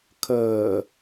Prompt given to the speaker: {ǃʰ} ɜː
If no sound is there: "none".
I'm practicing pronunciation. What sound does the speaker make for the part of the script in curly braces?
kʰ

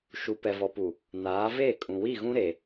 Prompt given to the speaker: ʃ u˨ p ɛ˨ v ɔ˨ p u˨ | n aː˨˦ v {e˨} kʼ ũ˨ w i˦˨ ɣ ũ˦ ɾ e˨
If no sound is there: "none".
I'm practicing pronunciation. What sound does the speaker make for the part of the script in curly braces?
e˦˨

